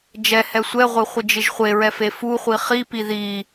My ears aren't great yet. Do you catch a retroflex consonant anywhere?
no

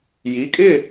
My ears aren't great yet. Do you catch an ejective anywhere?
yes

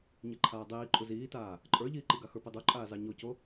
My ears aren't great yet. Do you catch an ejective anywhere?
yes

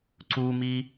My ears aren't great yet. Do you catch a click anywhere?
yes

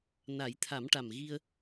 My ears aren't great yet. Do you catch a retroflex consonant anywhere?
yes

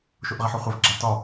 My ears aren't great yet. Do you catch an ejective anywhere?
no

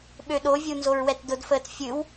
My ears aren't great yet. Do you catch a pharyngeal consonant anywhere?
no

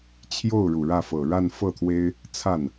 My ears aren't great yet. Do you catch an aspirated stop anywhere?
yes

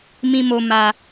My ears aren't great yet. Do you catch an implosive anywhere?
no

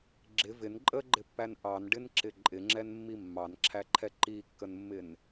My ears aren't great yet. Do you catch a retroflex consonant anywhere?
yes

